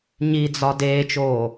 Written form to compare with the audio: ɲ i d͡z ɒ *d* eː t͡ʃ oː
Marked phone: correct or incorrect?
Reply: correct